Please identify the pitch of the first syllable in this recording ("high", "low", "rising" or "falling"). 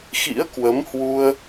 rising